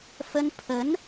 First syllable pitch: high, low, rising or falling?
high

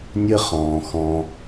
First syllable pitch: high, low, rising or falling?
high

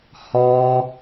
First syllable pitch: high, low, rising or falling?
high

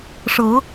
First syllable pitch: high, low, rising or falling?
rising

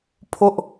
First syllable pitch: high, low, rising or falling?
high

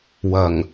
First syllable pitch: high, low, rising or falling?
low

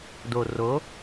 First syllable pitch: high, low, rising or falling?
low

